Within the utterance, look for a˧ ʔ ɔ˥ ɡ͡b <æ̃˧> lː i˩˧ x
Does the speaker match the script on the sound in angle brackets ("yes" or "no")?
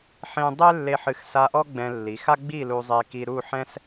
no